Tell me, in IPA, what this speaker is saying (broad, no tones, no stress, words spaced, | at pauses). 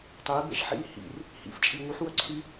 tˤʉi̯ bɛ̰ʃħḭl hḭr | hḭft͡ʃʼi wuħ wʌǀʰy